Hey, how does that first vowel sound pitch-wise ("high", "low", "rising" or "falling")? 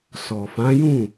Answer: low